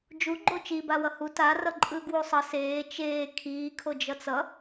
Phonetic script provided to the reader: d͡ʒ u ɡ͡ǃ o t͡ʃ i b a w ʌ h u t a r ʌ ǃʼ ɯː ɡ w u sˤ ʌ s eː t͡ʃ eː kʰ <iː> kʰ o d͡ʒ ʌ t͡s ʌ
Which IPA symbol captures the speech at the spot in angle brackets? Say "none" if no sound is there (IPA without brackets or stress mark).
iː